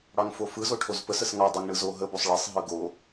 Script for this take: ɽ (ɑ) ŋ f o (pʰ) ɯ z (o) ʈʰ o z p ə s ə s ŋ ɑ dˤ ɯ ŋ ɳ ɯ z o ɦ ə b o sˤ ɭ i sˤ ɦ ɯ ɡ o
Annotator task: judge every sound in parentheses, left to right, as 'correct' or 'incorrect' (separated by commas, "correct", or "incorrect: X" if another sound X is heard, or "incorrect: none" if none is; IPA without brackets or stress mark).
correct, incorrect: f, correct